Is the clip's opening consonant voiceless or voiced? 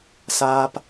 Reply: voiceless